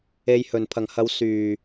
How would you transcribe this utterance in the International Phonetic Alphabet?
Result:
e˨ j h ɵ˨˩ n pʰ ɐ˨˩ ŋ h ɐ˨˧ w s yː˨˩

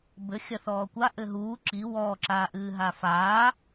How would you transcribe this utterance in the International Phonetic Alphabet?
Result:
b ɘ xʲ ɐ θ ɔː kʷ a ʔ ɘ ɦ uː ǁ i w ɔː ǁ aː ʔ ɨː ɦ a f aː

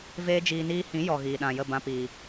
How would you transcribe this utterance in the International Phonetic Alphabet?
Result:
v eː˦ d͡ʒ iː˧ n iː˦ h ĩ˨˦ j ɔ˨ ɣ iː˨ ɗ ã˨ j ə˦˨ b ã˧ p iː˨

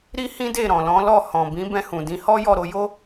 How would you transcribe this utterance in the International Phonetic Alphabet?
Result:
ɾ i˦ h ĩ˦ d e˦˨ ɾ ɔ̃˨ l ɔ̃˨˦ l ɔ˦˨ h ɔ̃˨ b ĩ˨˦ b ɛ̃˧ h ũ˨ d ĩ˧ h ɔ˦ j ɔ˦˨ ɾ o˧ j o˦

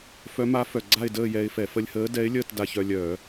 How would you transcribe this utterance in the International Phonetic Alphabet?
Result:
f œ˧˥ m a˧˥ f œ˨˩ ɡ͡ǀ a˥˧ ɪ̯ d əː˥˧ j ɛ˧ ɪ̯ f ɛ˧˩˧ f ə˧ lʲ h əː˧˥ d ɛ˧˥ ɪ̯ lʲ əː˥˧ t d a˧ ç œ˧ lʲ œː˧˩˧

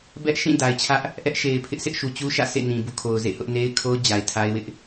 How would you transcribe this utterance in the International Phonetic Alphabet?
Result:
b ɛ˦ ʔ ʃ ĩ˦˨ d a˨ ɪ̯ t͡ɕʰ ä˦ ʔ | ʔ ɛ˦ ʔ ʃ e˨ ɪ̯ pʰ ɪ˦ ʔ sʰ ɪ˦ ʔ ʃ u˨ t͡ɕ u˦ ʃ ä̰˦˨ s ḛ˦˨ n ĩ˨ b ṵ˦˨ kʰ o˨ ʊ̯ z ḛ˦˨ h ʊ˦ ʔ n e˦ ɪ̯ kʰ o˦ ʊ̯ d͡ʑ a˨ ɪ̯ tʰ a˦ ɪ̯ w ɪ˦ ʔ

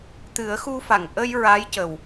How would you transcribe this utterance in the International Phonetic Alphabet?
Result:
t̪ ɨ˨˩˦ ə̯ x u˧ f a˨˩˨ ŋ ʔ ə˧ j ɹ a˧˥ j c ə˨˩ w

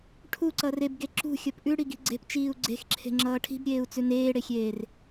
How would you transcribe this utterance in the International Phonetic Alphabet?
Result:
ʈʰ u ǀ ʌ r e b ɡ e ǁ ṳ xʲ ʌ p ʔ ʉ ɽ i ɡ i̤ ɡ͡ǀ e̤ p t͡ʃ iː u̯ ɡ͡ǀ e̤ x ǁʰ e̤ ŋ͡ǁ ʌː ʈʰ i̤ b ɾʲ eː u̯ t͡s ʉ n eː ɽ e xʲ eː r

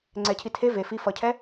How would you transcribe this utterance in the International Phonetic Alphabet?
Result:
ŋ͡ǀ ɛ cʰ i tʰ e v e f i f ʌ cʰ ɛ

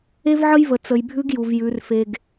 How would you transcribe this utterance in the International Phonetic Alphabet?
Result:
e˦ v ʕ ə˦ j v ə˨ t͡s ə˨ j bʱ ʉ˦ ɡ j u˨ v j ʉ˨˦ r f e˦ ɡ

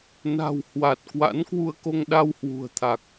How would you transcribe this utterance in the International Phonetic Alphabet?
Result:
n a̤˨˩ w h w a˨˩ t̚ k w a̰˧˥ n k w u˧ ə̯ k o˧ ŋ ɗ a˧ w h w ṳ˨˩ ə̯ t̪ʰ a˨˩ k̚

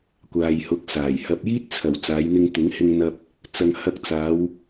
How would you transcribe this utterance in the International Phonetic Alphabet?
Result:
kʷ aː˨ j h ʊ˨˥ k̚ s aː˨˩ j h ɐ˨ p̚ j iː˥ t̚ t͡sʰ ɐ˨˩ w t͡s aː˨˧ j n̪ ɪ˧ ŋ t̪ ɪ˨˥ ŋ h ɪ˧ ŋ n̪ ɐ˧ p̚ | t͡s ɐ˨ ŋ h ɐ˧ k̚ t͡s aː˨˧ w

